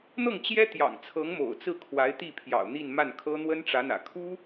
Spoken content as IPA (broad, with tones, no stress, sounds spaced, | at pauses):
n̪ ɤ˥˩ ŋ t͡ɕ j ɛ˥ t̪ j ɑ̰˨˩ ŋ t͡sʰ ɤ˧˥ ŋ m o̰˨˩ ʊ̯ t͡s ɹ̩˥˩ kʰ w a˧˥ ɪ̯ t̪ i˥˩ pʰ j ɑ̰˨˩ ʊ̯ n̪ i˥˧ n m a˥˩ n kʰ ɤ˥ n̪ w ə˥ n ʈ͡ʂ ä˧˥ n̪ ä̰˨˩ kʰ u˥